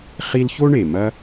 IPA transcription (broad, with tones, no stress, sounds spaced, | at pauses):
χ i˥ l ç o˥ ɳ e˩ m ɐ˥